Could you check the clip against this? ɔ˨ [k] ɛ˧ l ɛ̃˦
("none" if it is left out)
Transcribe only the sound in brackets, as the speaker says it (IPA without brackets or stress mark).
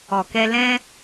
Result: k